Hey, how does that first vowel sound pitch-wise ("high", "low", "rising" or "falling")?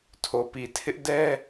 low